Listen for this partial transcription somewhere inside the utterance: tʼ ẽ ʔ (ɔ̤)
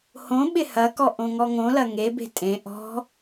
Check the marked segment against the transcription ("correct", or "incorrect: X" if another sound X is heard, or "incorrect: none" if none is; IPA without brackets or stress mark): correct